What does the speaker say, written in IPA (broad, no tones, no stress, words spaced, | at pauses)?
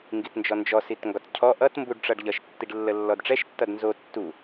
ŋɡitnd͡ʒɔnd͡ʒɔ sitŋɡɒtcʰɔ ʔʌt mbuɖʈ͡ʂʌɖʎʌʃ tːiɖlːəlːɔdʈ͡ʂɛʃ tːʌdnzo tːu